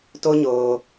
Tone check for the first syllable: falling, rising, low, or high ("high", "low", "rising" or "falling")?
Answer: high